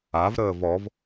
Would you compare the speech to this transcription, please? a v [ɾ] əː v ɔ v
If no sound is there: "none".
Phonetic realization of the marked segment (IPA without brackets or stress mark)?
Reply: ɾ